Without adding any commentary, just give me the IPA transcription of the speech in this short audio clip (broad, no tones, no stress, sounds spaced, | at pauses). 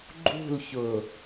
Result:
ɡ͡ǃ ṳ l ç ʊ